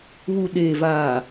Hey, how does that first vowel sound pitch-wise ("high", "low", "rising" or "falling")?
low